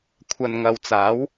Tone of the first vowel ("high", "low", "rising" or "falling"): low